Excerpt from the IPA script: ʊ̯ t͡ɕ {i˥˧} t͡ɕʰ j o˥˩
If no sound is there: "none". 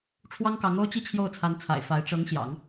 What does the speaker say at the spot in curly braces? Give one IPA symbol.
i˥˧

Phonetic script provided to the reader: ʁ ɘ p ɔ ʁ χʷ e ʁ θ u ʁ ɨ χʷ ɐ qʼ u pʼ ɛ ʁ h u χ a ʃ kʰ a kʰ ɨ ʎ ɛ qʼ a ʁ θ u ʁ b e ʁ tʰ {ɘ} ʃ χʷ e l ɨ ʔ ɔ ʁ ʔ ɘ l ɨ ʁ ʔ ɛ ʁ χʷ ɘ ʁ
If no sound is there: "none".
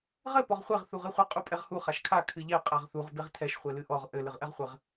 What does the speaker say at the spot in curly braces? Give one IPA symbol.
ɛ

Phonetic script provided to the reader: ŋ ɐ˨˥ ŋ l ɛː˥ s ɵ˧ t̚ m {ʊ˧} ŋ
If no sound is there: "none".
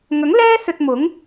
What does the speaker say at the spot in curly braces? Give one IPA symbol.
ʊ˨˥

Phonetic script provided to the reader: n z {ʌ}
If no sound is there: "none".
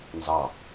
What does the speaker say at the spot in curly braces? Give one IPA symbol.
ɑ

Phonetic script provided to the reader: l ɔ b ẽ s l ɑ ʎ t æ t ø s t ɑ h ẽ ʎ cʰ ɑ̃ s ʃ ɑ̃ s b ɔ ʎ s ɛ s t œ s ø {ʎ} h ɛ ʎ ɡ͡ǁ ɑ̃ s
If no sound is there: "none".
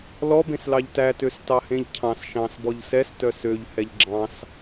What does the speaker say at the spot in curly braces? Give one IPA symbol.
ʎ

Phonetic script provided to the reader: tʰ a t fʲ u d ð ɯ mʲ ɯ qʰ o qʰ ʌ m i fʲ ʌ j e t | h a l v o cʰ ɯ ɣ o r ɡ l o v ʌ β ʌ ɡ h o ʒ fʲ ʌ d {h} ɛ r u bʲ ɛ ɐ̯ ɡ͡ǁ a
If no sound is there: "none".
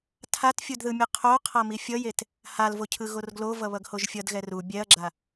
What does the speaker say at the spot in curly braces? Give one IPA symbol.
ɣ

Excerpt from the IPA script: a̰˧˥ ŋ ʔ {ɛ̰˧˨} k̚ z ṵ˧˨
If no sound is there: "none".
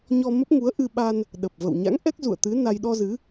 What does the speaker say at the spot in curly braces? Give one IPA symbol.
ɛ˦˥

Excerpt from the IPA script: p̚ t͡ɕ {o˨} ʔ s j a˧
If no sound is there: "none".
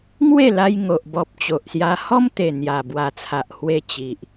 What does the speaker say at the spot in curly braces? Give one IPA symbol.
o˨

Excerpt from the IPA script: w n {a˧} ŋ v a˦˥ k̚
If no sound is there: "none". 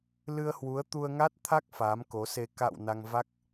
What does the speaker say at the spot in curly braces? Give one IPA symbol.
a˧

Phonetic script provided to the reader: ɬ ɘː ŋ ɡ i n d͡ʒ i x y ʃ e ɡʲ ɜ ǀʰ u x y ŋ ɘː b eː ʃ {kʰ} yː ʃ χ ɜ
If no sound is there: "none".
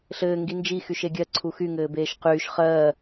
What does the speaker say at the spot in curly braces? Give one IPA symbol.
q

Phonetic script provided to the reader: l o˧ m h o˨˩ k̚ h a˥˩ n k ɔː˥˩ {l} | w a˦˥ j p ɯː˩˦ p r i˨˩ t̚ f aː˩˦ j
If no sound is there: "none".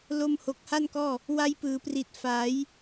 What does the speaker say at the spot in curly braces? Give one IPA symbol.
none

